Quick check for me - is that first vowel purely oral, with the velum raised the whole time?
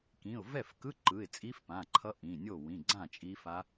no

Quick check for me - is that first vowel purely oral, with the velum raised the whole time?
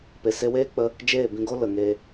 yes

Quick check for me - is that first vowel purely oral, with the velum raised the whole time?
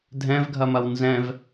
no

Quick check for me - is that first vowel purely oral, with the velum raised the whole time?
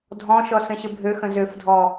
no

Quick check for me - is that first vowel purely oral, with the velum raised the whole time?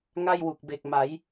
yes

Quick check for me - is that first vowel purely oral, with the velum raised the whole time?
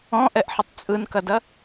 no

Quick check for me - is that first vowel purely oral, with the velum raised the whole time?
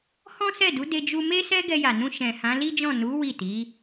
no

